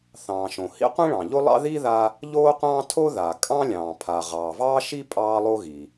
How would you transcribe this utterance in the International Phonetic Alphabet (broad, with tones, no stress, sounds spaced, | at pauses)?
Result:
θ ɑ̃ː˩ ʃ õ˩ h ḭ˥ qʷ ĩ˥ ɭ ɑ̃˩ ʎ o˥ lˠ ɑ̰˥ ð i˥ ð a˥ | ʎ oː˥ qʷ ɑ̃ː˥ tʰ o˥ ð a˩ kʼ ɑ̃˥ lʲ ɑ̃ː˩ pʰ a˩ ʁ ɑː˩ v ɑː˥ ʃ i˥ pʼ ɑː˥ lˠ o˥ ɣ i˩